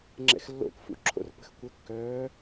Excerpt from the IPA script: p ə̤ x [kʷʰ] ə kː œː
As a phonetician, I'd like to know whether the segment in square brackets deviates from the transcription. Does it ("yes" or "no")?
yes